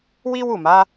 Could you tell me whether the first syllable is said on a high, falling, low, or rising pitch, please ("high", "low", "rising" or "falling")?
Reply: high